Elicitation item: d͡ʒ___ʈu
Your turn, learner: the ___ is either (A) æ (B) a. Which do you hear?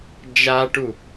B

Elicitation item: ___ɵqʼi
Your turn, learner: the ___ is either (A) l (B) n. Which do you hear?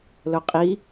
A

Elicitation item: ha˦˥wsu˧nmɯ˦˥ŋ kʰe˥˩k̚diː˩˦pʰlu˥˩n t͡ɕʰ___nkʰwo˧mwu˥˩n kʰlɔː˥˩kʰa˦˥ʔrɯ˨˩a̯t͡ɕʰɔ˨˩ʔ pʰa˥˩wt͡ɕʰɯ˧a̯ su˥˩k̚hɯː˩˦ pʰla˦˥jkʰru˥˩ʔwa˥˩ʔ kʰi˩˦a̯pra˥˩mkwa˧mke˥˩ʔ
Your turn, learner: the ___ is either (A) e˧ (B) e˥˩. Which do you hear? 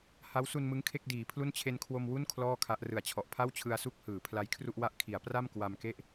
A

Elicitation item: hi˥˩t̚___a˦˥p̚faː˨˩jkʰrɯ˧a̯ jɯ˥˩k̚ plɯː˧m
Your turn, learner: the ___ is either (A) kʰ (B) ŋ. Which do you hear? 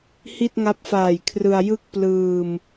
B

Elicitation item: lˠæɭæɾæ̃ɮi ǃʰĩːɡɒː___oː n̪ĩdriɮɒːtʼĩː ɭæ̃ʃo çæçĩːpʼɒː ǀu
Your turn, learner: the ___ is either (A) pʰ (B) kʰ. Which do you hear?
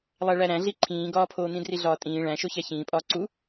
A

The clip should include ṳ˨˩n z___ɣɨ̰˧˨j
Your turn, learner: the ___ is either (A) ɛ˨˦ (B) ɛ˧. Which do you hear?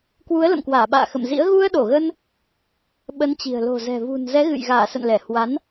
A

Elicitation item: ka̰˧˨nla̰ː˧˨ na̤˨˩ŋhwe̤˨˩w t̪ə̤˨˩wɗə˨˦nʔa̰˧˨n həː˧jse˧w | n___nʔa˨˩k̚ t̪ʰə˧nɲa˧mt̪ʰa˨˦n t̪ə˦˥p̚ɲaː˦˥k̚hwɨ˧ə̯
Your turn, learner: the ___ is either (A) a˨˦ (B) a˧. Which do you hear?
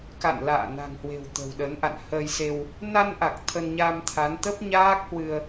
B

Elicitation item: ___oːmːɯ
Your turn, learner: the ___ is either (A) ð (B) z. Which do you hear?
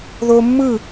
A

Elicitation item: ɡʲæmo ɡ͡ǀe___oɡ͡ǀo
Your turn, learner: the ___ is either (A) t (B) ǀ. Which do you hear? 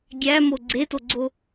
A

